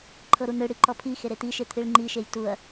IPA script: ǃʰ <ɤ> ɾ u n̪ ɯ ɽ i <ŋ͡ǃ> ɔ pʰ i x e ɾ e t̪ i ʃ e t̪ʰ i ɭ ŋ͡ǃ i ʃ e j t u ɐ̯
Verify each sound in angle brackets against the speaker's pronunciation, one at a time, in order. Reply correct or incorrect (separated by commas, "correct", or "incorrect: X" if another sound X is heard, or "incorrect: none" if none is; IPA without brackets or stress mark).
correct, incorrect: ǃ